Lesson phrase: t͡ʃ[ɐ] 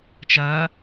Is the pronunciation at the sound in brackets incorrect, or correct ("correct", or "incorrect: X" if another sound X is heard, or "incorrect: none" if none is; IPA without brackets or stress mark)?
correct